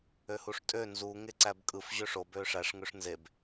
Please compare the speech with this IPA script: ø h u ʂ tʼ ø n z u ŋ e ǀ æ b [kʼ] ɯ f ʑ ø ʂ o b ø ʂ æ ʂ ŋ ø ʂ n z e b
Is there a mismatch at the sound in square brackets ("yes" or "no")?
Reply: no